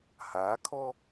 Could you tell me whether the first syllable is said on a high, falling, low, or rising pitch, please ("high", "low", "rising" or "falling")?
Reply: rising